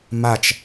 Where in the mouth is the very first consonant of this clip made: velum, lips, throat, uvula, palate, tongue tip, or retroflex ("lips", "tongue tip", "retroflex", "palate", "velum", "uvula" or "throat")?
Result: lips